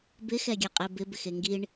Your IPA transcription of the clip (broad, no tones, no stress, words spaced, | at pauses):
bɪxɛɡʲɛ qʼebɪbɪx eŋɡiɳ